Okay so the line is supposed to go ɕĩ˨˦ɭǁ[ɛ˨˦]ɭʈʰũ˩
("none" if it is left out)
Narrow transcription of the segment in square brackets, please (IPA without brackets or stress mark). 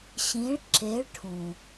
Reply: e˨˦